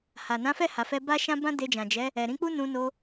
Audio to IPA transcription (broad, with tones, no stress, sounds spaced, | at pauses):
h a˨ n ã˨˦ f ɛ˦˨ h a˨ f ɛ˧ b a˦ ʃ ã˦ b ã˦ d e˧ d͡ʒ ã˨ d͡ʒ ɛ˨˦ | ɛ˨ ɾ ĩ˨˦ k͡p u˦ n ũ˧ n o˧